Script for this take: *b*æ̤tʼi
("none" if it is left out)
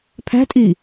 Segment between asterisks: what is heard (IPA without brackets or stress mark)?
pʰ